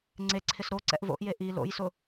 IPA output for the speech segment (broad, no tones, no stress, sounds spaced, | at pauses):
ŋ͡ǀ e ǀʰ ɪ s ɾ o ǀ ɛ̰ ʔ v o̰ ʔ j e ʔ i l o̰ j s ʊ